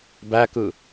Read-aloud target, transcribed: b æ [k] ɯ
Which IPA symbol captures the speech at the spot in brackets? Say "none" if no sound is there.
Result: k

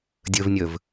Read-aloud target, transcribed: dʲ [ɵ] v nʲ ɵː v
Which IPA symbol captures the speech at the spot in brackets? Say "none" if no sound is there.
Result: ɵ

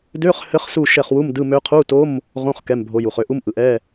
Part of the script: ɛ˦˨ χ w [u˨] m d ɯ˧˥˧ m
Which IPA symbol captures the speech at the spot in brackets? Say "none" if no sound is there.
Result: u˧˥˧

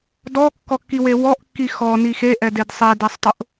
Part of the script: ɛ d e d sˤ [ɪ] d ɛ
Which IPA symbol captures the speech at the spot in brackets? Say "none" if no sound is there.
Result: ɛ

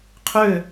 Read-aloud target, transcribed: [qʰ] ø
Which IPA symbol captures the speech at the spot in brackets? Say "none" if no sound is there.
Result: qʰ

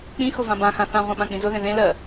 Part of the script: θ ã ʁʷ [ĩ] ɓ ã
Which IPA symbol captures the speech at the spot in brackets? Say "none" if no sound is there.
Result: ẽ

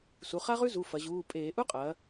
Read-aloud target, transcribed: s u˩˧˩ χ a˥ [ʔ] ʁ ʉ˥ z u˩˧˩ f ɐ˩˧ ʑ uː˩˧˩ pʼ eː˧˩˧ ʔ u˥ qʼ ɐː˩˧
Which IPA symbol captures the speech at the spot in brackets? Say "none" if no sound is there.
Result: none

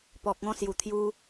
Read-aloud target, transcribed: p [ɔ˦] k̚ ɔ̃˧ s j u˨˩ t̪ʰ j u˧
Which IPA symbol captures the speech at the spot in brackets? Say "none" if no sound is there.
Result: ɔ˨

